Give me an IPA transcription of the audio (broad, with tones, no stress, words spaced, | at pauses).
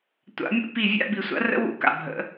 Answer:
tʷa̰˨˩˦mʲṵ˧˥ pi˦˨ vʲa̰˧˥˧bi˨˩˦sʷa̰˩˥rə̰˧˥˧ wṵ˦˨ka̰˨ bʱə̰˨˩˦